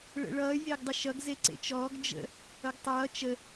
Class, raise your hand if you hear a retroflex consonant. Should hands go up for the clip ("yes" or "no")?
yes